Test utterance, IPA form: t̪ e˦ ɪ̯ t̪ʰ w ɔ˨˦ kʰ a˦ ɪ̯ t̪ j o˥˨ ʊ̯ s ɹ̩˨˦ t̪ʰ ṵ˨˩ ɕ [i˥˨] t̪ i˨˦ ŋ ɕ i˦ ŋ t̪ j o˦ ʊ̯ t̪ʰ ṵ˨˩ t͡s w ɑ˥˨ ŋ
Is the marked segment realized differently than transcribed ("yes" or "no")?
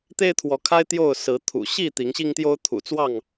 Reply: no